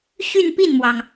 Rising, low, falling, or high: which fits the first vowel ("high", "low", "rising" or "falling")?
falling